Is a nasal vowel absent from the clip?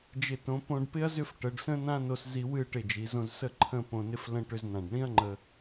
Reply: no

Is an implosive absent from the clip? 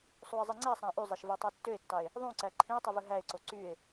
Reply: yes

